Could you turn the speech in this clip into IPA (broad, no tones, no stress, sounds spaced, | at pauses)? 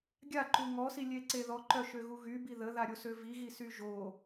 ɡʲ a ǃ u ŋ ɔ s i lʲ e ǀ e ð ɔ ǃ œ ʃ ø ɣ u ɣ y b i ð ə ð a ɾʲ o s ø v i ɣ i s y ʒ o